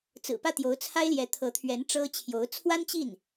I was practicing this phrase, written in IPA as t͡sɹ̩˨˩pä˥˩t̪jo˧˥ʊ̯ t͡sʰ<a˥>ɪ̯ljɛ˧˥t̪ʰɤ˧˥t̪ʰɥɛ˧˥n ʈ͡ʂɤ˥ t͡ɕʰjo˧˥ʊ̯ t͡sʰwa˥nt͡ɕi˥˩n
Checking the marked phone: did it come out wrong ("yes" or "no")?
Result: no